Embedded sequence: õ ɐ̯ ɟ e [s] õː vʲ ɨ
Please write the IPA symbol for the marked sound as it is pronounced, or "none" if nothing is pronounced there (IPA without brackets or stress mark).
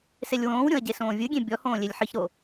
s